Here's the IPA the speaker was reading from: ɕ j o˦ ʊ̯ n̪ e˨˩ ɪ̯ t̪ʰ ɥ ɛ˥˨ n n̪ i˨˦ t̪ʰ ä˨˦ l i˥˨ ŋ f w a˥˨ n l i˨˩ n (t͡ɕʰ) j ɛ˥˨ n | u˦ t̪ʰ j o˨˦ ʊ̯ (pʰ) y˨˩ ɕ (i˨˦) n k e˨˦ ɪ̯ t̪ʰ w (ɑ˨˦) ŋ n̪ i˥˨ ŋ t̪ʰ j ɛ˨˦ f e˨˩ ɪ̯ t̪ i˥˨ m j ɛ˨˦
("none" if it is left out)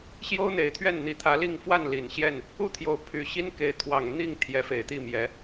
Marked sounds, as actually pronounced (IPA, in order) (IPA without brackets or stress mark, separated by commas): ɕ, pʰ, i˦, ɑ˨˩